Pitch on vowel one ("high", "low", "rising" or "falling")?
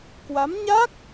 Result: rising